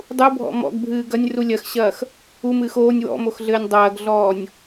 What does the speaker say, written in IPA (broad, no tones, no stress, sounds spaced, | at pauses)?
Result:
dˤ u bʱ ɔ̰ m ɔ̰ ɡ bʱ ɨː ɡ ɐ nʲ r u lʲ ɐ x ɕ ɐː x | u m ɨː x oː nʲ w ɔ̰ m o x ɮ ɘː nʲ dˤ ɐː ɡ ɮ ɔː nʲ